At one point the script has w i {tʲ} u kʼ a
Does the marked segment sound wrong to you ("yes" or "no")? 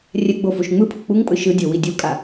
yes